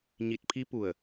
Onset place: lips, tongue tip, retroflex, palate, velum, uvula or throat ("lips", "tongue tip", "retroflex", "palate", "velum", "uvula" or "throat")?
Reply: palate